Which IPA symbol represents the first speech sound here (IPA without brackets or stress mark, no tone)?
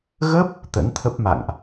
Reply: ɣ